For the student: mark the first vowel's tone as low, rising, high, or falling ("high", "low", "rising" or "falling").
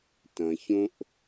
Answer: low